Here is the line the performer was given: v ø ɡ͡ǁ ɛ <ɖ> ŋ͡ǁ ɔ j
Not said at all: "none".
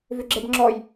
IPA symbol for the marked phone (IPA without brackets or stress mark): b